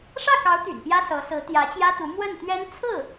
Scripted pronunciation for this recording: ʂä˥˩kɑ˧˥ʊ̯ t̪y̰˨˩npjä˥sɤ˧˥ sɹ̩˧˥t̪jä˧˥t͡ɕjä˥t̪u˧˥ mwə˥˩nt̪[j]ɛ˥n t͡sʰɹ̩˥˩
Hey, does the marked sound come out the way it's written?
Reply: no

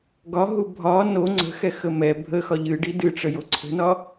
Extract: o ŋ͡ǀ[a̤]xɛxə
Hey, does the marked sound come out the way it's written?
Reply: no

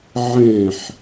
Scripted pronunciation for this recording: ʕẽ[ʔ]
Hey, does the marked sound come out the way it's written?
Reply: no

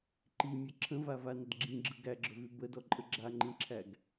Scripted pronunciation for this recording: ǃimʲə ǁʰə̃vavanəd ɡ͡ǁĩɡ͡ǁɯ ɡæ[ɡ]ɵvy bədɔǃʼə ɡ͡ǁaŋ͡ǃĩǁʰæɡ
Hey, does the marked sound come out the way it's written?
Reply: no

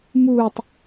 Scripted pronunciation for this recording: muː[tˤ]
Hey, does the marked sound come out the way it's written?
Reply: yes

